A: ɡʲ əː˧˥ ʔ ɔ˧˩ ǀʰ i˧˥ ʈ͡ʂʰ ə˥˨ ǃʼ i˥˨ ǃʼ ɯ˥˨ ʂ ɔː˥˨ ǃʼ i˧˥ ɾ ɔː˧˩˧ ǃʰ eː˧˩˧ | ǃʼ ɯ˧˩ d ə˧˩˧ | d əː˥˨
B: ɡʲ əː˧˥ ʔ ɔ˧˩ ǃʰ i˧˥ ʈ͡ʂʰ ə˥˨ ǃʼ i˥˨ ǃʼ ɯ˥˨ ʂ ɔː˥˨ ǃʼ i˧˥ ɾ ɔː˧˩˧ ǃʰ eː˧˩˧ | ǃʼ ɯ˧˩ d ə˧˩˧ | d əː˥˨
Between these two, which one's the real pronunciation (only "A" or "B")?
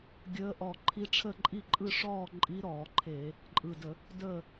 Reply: B